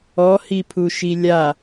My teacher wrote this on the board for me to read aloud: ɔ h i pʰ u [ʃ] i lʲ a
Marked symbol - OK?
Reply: yes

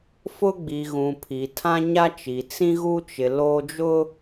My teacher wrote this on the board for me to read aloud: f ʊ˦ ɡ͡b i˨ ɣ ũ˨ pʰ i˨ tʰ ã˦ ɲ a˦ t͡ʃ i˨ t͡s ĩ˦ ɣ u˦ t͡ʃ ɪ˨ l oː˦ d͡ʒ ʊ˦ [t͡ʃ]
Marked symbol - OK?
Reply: no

